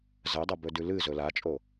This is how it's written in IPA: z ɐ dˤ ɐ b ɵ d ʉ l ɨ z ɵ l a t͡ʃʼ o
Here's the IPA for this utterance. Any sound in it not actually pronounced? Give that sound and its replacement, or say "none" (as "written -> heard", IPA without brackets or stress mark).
none